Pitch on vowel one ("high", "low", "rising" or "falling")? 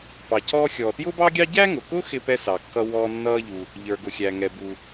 low